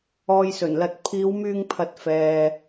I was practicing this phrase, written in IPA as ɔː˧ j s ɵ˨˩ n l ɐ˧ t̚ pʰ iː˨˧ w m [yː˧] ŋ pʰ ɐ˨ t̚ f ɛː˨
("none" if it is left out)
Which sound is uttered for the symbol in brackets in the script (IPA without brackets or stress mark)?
yː˧